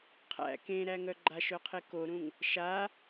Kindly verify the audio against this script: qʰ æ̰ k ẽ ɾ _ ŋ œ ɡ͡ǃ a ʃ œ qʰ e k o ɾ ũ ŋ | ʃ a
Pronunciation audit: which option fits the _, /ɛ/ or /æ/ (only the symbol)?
æ